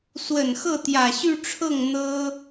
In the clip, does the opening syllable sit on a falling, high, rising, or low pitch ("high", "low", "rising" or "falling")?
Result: low